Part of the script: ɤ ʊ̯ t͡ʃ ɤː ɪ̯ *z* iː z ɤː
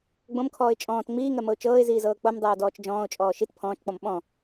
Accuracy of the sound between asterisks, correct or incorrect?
correct